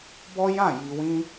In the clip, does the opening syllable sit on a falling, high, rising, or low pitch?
high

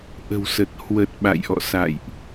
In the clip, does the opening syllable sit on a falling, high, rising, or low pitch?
low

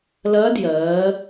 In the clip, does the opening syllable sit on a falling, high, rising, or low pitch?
rising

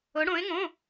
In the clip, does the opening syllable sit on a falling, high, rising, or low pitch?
rising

